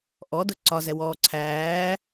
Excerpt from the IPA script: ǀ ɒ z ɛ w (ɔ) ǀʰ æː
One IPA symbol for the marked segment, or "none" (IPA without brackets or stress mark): ɔː